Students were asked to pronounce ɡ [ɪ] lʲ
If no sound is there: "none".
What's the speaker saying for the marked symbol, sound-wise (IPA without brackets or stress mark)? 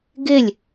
ɪ